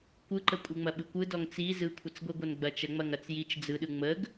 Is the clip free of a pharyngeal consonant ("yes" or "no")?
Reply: yes